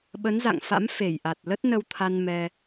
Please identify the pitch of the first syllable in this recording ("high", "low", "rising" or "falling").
rising